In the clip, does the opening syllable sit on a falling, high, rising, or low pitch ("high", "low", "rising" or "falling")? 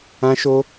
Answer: high